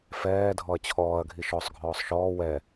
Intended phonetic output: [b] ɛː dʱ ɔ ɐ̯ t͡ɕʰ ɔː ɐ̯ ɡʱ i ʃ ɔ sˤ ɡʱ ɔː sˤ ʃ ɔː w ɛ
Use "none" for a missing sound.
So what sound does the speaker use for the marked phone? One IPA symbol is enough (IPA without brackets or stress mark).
f